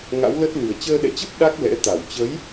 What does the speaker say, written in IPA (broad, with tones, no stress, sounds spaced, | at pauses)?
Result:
ŋ a̰˧˥ w l ə˦˥ t̚ l ɨ˨˩ ə̯ t͡ɕ əː˧ ɗ ɛ̰˧˨ t͡ɕ ə˦˥ p̚ ɗ a˦˥ k̚ l ɛ̰˧˥ t̪ a˧˩ w t͡ɕ ə˨˦ j